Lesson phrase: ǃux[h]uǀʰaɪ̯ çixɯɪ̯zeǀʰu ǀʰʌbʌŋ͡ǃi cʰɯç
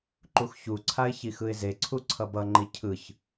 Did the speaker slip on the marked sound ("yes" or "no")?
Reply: yes